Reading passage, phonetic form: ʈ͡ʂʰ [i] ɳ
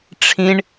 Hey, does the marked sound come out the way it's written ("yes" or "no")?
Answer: no